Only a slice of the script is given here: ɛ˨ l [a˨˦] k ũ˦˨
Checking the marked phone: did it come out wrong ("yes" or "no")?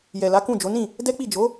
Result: no